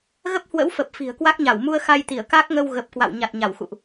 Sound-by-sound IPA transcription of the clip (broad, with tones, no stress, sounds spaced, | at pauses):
ɣ ə˦˥ p̚ h w ə̰˧˥ w f ə˨˩ p̚ f i̤˨˩ ə̯ k w a˦˥ k̚ ɲ a˧˩ w m u˧ ə̯ x a˧ j t̪ i˧˩ ə̯ k a˦˥ k̚ ŋ ə˧ w ɣ ə˨˩ p̚ k w a̰˧˨ w ɲ a˨˩ t̚ ɲ a˧˩ w x ṵ˧˨ ʔ